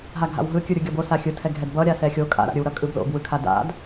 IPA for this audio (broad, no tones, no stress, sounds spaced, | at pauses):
ɦ a ɡʱ a̰ w ɦ ɯ kʲ ɯ ɾʲ ɯ ɡʲ ʌ b o s a xʲ ɯ tʰ ɛ ɡʱ ɛ d b ʌ ɾʲ a s ɛ xʲ o kʼ a̰ ɾ a̰ ɾʲ ɯ w ɾ ʌ kʼ ɯ b l o̰ b w ɯ kʰ a d a̰ d